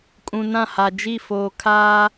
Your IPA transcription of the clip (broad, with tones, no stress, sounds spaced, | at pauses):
kʼ ũ˨ n ã˦˨ h a˨ d͡ʒ i˦˨ f oː˨ kʰ aː˦